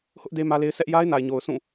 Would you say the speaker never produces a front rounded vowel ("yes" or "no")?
yes